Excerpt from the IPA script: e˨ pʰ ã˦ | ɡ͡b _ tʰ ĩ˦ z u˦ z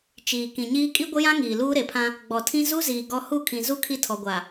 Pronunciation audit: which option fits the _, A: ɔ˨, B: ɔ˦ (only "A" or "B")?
A